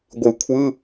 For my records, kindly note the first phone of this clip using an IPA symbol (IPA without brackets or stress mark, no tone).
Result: ɡʷ